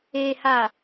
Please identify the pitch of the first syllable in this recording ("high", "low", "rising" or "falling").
low